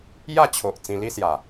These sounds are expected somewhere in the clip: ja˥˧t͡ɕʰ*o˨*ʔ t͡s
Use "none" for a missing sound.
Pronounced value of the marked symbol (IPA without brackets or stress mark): o˨